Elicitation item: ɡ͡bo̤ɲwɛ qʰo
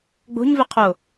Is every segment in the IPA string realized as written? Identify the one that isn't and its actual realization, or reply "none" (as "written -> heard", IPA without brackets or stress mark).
w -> v